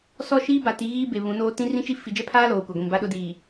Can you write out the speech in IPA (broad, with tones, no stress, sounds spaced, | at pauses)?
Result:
s ɔ˦˨ ʃ iː˦ b a˨ t i˨˦ ɣ iː˦ b e˨ β ũ˨˦ n oː˦ t ĩ˦ r ĩ˦ t͡ʃ i˦ f i˨ d͡ʒ ɛ˦ pʰ aː˦ l oː˨ kʷ a˨ ɡʷ ĩ˨ m b a˦ ɗ ʊ˦ d iː˨